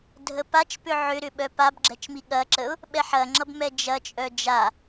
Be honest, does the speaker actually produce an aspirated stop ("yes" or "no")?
no